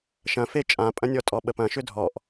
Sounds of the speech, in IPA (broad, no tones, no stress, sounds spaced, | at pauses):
ʃ ɐ̃ f e t͡ʃʼ ã pʼ ɐ̃ nʲ ɔ tʼ ɔ ɓ ə p ɐ̃ ʃ ʏ dʱ ɔ ʔ